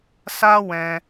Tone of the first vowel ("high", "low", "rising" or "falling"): high